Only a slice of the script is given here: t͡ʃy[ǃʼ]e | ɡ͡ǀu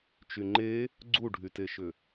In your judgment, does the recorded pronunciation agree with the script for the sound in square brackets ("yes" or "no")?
no